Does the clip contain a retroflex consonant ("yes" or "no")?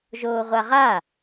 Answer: no